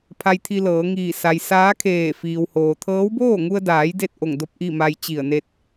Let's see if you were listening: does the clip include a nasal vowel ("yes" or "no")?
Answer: no